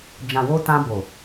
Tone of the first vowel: low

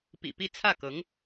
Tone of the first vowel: low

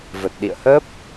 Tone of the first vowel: low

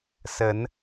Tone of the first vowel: rising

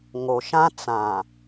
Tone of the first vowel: low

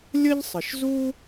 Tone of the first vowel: high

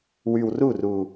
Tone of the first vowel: low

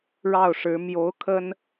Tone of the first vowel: falling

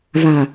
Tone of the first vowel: low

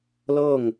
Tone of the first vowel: falling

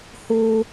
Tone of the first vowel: high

